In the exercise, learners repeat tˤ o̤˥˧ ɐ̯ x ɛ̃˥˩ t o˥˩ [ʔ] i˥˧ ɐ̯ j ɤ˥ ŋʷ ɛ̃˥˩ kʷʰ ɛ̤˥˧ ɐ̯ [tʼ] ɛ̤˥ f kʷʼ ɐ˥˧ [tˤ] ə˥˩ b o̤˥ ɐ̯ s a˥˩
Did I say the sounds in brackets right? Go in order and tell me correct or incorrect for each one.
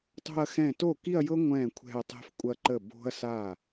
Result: incorrect: k, incorrect: tˤ, incorrect: ǃ

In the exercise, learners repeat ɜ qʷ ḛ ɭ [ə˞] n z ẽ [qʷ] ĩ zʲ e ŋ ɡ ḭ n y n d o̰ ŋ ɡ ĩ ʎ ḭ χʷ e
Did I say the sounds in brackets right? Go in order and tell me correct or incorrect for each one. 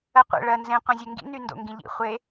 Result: incorrect: ɜ, correct

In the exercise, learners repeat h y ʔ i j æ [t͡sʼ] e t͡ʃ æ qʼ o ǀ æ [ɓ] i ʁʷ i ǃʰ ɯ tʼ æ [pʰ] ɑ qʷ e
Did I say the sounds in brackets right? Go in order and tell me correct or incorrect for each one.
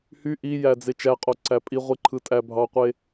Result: incorrect: d͡z, incorrect: pʼ, incorrect: bʱ

